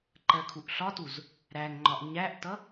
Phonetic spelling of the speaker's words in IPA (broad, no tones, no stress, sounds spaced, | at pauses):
ǃ ɜ kʰ u ʔ ɬ ɒ t u z | ɾ æ ŋ ŋ͡ǃ ɒ ʔ ɲ æ ʔ t ʌ